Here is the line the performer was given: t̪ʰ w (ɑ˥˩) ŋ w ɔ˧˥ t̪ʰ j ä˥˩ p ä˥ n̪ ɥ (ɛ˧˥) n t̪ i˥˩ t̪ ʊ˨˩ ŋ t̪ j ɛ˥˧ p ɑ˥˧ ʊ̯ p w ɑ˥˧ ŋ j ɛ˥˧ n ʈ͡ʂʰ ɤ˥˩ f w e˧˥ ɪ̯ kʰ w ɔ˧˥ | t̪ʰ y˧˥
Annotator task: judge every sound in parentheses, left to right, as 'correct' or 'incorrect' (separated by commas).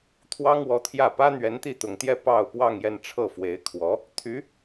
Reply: incorrect, correct